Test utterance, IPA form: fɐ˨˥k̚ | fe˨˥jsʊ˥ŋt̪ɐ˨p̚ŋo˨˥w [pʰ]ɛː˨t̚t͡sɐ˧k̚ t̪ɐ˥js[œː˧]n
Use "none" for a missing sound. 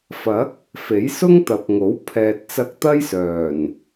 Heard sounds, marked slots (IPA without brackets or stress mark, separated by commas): pʰ, œː˨˩